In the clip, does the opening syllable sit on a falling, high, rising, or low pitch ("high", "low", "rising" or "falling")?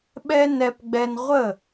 high